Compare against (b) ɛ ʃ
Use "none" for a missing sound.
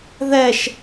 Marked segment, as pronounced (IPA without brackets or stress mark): ð